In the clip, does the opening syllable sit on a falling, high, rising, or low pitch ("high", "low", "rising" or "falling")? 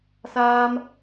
high